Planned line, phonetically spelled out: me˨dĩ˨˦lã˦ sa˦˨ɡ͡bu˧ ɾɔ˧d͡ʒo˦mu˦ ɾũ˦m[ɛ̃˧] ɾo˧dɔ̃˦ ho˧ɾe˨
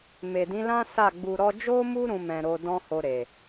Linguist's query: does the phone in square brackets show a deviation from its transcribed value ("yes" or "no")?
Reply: no